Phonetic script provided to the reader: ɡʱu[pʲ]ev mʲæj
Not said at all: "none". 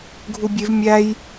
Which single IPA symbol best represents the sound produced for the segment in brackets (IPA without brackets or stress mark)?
bʲ